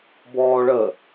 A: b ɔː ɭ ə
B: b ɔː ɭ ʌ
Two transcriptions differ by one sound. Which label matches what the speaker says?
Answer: A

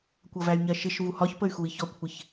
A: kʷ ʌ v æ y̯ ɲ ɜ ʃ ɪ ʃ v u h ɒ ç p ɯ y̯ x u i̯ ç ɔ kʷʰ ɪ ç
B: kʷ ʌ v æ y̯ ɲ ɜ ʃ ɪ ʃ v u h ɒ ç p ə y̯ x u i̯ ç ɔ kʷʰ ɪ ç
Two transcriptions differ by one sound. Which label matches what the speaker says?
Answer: B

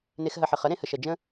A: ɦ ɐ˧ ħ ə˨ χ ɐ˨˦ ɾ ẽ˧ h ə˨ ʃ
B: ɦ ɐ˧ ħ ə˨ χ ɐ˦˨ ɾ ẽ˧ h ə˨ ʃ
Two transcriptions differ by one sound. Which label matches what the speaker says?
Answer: A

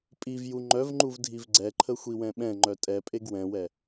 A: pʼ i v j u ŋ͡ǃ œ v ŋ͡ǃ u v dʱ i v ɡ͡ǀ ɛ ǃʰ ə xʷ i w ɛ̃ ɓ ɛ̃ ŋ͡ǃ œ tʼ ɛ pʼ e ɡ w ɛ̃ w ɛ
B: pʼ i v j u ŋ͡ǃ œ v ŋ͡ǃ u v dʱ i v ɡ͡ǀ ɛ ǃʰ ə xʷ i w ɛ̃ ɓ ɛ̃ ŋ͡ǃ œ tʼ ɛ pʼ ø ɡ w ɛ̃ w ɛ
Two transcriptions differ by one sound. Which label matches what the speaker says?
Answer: A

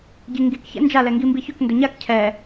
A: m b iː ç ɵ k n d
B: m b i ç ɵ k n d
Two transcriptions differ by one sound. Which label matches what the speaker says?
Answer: B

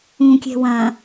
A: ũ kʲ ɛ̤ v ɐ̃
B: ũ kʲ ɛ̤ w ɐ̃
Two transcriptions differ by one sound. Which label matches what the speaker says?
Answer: B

